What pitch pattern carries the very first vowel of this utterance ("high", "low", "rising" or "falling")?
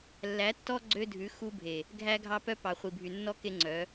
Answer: rising